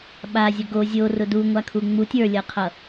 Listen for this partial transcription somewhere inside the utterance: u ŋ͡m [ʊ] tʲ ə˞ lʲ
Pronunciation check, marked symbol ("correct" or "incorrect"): incorrect